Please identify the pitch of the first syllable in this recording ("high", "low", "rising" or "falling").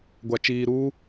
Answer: low